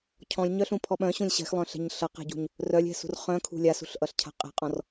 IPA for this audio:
cʰ ɔ̃ lʲ ɲ œ ɬ ũ pʰ ɔ ɓ œ̃ ɕ ũ lʲ ɕ ɛ̤ x lˠ œ̃ ɬ ɛ̤ ɲ ɬ ʌ q ɛ̤ ɟ ṳ ɲ | r œ lʲ ɛ̤ s ṳ r χ œ̃ kʰ ṳ lʲ a s ṳ ɬ ʔ ʌ ɬ cʰ a̤ qʼ ɛ̤ qʼ ɔ̃ r

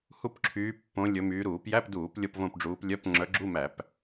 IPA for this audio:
h u˥˧ p ǁʰ yː˨˦ pː õ˨˦ lʲ ɵ˨˦ m yː˨˦ ɾ uː˧˩˧ p j æ˧˥˧ p d uː˧˩˧ p lʲ o˥˧ p v õ˥˧ p ɖ͡ʐ uː˨˦ p lʲ œ˧˥˧ p ŋ͡ǁ œ˨˦ ɡ͡ǁ u˧˥˧ m æ˧˩˧ p

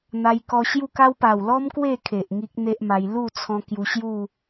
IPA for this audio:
n̪ a˧ j k ɔ˧ ɕ j u˥˧ k a˦ w p a˨˩ w l ɔ˦ m k w e˥˧ kʰ e˨ ʔ ŋ i˦ k̚ n̪ e˦ ʔ m a˧ j l u˥˧ t͡sʰ ɔ̃˧ k j u˧ ɕ j u˥˧

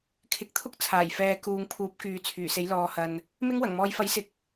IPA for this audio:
kʰ ɪ˨˥ k̚ t̪ʰ ʊ˥ k̚ t͡sʰ aː˨˩ j f ɛː˨ k uː˨ ŋ pʰ uː˨˥ p̚ k yː˨˧ t͡sʰ yː˨˩ s e˨˥ j l ɔː˨ h ɐ˨ n | m ɪ˥ ŋ w ɐ˨˩ ŋ m ɔː˥ j f ɐ˨˥ j s ɪ˨˥ k̚

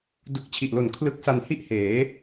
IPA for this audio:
d u˨˩ k̚ t͡ɕʰ i˨˩ ʔ l o˨˩ n kʰ l ɯ˦˥ k̚ s a˧ n h i˥˩ ʔ h eː˩˦

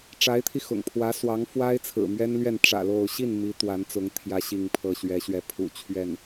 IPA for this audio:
ʈ͡ʂ a˧˥ ɪ̯ t̪ʰ i˧ x ʊ̰˨˩ ŋ pʰ w ä˧˥ s w ɑ˧˥ ŋ f w a˥ ɪ̯ t͡sʰ ɹ̩˨˩ m ɥ ɛ˥ n l ɥ ɛ˥˩ n ʈ͡ʂ ä̰˨˩ l o˥˧ ʊ̯ ɕ i˥˩ n m i˧˥ t̪ w a˧˥ n t͡s ʊ˧˥ ŋ t̪ʰ j ä˥ ɕ i˥˧ ŋ pʰ ɤ˥˩ ɕ ɥ ɛ˧˥ ɕ ɥ ɛ˧˥ pʰ ṵ˨˩ t͡ɕʰ ɥ ɛ˥˩ n

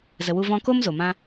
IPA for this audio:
z ə˨ w u˧ v ɔ̃˧ k o˦ m z o˨ m ã˦

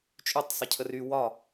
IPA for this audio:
t͡ʃʼ y tˤ sˤ ə cʰ ə r y w ɒ

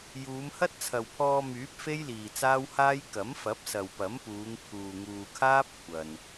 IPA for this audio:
j uː˨˧ m h ɐ˥ t̚ t͡sʰ ɐ˨ w pʰ ɔː˧ m yː˨˥ p̚ f e˥ j l iː˨ t͡s aː˥ w h aː˥ j k ɐ˨˥ m f ɐ˨˥ p̚ s ɐ˨ w p ɐ˨˥ m p uː˨˧ ŋ pʰ uː˨ ŋ uː˨ kʰ aː˥ p̚ kʷʰ ɐ˨ n

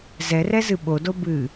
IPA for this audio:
z ɛ r ɛ z ɨ ɓ o d o b ɨ

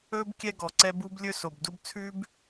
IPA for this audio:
ɵː˦ b kʲ ɛ˦ ɡ ɔ˨ ǀ ɛ˦ b u˦ b lʲ ɵ˦ s o˨ b d u˦ b t͡sʰ ʉ˦ b

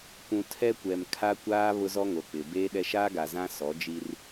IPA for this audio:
kʷ ũ˨ tʰ ɛ˦ kʷ ɛ˨ m kʰ a˦ kʷ aː˦ β ʊ˦ z ɔ˦ ŋ o˨ k͡p ɪ˨ b eː˦ ɗ ɛ˦ ʃ aː˦ ɡ a˨ z ã˦ s ɔ˨˦ d͡ʒ i˦ r

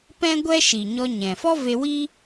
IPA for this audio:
p ɛ̃˦ ɡʷ ɛ˦ ʃ i˨ ɲ ɔ˧ ɲ ɛ̃˨ f ɔ˦ v e˧ w i˦

